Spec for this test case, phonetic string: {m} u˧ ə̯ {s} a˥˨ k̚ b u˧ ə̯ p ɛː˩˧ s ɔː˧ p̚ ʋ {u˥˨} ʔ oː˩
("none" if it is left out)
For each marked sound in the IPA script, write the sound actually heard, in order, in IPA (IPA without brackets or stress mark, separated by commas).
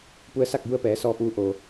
p, s, u˧